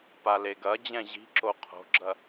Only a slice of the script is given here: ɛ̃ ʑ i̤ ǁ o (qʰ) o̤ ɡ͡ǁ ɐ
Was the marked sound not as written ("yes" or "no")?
no